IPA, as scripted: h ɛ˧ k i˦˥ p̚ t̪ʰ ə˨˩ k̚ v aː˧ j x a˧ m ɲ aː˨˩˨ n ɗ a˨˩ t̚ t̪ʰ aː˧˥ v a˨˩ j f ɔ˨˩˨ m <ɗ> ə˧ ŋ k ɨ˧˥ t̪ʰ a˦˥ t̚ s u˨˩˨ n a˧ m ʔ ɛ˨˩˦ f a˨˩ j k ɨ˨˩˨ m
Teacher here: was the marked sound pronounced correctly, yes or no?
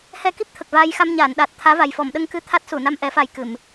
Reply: yes